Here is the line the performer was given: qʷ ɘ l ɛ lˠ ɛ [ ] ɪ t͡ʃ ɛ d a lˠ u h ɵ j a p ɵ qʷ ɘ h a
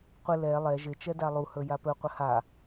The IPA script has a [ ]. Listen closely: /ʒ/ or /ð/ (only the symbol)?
ʒ